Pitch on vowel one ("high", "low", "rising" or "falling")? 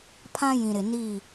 high